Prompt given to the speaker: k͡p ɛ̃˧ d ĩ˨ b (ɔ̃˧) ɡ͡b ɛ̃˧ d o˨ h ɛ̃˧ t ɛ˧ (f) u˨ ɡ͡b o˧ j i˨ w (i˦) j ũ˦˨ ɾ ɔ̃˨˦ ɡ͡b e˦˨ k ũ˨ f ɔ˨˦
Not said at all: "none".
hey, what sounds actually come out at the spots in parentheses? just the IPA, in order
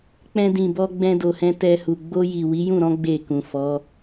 ɔ˧, h, i˨˦

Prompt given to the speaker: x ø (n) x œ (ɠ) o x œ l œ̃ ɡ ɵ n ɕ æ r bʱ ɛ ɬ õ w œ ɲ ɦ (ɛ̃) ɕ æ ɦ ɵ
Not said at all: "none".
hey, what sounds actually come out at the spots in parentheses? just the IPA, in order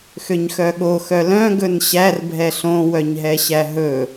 ɲ, ɠ, ɛ

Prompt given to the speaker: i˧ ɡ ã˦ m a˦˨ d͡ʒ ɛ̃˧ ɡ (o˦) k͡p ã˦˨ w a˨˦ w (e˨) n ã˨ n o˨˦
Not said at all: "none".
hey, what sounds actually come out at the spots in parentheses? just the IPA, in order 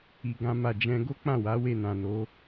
o˦, e˦˨

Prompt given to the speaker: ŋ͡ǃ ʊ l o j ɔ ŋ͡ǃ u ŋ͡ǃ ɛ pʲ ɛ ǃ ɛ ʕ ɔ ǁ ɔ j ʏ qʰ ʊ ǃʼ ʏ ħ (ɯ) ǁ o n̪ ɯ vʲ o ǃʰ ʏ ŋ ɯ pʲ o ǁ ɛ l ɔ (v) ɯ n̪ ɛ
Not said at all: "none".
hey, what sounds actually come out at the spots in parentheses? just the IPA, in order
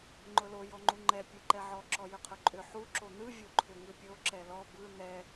u, b

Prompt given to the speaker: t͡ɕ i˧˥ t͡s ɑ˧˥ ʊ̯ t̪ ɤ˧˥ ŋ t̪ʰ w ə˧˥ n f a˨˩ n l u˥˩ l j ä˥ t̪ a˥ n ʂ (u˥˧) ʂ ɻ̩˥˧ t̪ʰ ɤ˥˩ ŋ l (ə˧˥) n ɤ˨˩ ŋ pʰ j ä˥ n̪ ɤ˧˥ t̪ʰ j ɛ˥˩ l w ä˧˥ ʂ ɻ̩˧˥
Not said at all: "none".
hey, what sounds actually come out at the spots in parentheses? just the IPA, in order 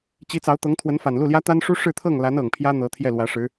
u˥, a˧˥

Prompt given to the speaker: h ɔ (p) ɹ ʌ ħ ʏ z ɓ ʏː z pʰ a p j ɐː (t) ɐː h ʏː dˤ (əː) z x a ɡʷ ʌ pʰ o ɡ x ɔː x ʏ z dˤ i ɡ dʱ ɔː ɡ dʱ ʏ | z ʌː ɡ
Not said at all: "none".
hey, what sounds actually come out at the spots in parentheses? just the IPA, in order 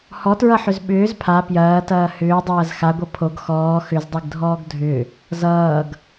t, t, ɐː

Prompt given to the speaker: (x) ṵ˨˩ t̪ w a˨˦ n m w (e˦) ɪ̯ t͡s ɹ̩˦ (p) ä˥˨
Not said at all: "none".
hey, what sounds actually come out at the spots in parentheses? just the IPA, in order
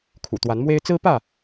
kʰ, e˦, p

